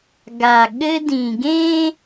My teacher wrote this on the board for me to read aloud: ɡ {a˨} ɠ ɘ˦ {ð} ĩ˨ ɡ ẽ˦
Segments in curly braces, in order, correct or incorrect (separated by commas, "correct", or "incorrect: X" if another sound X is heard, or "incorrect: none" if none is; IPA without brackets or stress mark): correct, incorrect: d